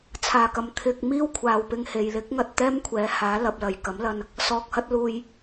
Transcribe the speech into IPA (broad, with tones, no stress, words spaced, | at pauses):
t͡sʰaː˨˩kɐ˨m t̪ʰɪ˨k̚ miː˥wkʷʰaː˨wpɪ˧ŋ he˨j lɪ˨˥k̚ŋɐ˨t̚ t̪ɛː˥mkʷʰɛː˨˥haː˨˥ lɐ˨p̚lɐ˨˩jkɐ˨˥mlɐ˧n | sɔː˧k̚hɐ˥t̚ luː˧j